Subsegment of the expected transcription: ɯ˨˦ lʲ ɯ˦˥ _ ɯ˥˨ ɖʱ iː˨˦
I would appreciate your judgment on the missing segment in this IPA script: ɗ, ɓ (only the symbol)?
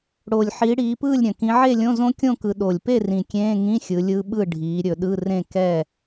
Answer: ɓ